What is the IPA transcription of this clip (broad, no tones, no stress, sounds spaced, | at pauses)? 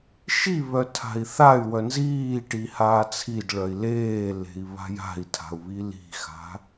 ʃ i β œ tʰ a̤ i̯ θ a y̯ w œ n z iː ʈ i h aː t͡sʰ i d ɭ œ i̯ l eː l e̤ i̯ β a̤ j a̤ i̯ tʰ a̤ u̯ β i l i̤ x a̤